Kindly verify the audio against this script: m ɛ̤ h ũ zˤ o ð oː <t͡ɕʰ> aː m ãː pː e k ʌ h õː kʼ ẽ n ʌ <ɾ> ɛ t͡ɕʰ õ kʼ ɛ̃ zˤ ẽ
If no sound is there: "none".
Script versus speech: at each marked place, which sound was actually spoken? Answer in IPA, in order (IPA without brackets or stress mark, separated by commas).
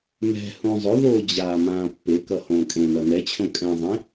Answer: d͡ʑ, n